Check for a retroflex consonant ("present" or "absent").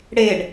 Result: present